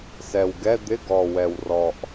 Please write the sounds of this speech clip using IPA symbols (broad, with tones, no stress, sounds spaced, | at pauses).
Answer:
s ɛ˨˩ w ɡ ɛ˧˥˧ d̪ ɪ˧˥˧ ɡ ɔ˨˩ w ɛ˨˩ w r ɔ˨˩ ʔ